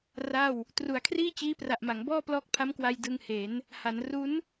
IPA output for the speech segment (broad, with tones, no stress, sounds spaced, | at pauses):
r a˥˩ w | t r u˩˦ a̯ kʰ r iː˥˩ t͡ɕ iː˦˥ p r a˨˩ ʔ m a˩˦ ŋ b ɔː˥˩ p l ɔː˦˥ k̚ pʰ a˦˥ m k w a˧ j d ɯ˧ ŋ h e˩˦ n | h a˩˦ n r u˦˥ n